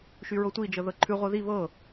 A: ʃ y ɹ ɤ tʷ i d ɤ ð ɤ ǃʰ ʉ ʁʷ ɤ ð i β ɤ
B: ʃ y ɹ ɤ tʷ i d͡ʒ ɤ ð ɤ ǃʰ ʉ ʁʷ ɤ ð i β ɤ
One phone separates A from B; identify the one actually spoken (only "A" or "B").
B